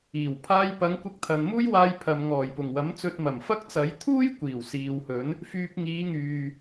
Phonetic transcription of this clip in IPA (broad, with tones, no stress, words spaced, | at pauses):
iː˨˩w pʰaː˧jpɐ˨˧ŋ kʷɪ˧k̚t̪ʰɐ˨nmuː˥j waː˧jpʰɐ˨m ŋɔː˨˩jpʊ˨˩ŋwɐ˨˥m t͡sɵ˧t̚ mɐ˨˩mfɐ˥k̚t͡sɐ˨˥j t̪ʰuː˥jkʷiː˨˩w siː˨whɵ˨˥n | fyː˧p̚ŋiː˨˧ŋyː˨